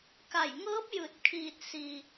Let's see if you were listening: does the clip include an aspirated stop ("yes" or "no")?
yes